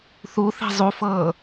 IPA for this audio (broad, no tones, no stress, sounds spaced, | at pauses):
θ u θ i̤ zˤ u f ɤː